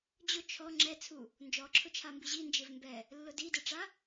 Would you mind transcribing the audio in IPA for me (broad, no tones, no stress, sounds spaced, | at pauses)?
d͡ʑ ʊ t͡ʃʰ ɔ ŋ͡ǁ ɛ t͡sʰ u | n d͡ʒ ɔ ǁʰ ʊ t͡ʃʰ a m b i ʑ i n d͡ʒ ɪ v m b ɛ | lː ʊ d i d e ʈ͡ʂ a